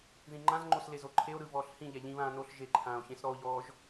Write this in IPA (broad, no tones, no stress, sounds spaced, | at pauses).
ð ĩ ŋ͡ǃ ã z ŋ͡ǃ o s l e z o ǃʰ e o̯ ɾ ɯ v ɔː ɬ h ĩ ʎ ɛ ʎ ĩ β ãː n o ɬ ʒ e ǃʰ ãː o̯ ç ẽ s ɾ ɔ o̯ ʎ ɔː ʒ